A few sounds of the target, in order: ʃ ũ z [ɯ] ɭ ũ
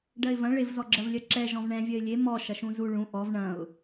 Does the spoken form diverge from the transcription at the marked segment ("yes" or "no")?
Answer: yes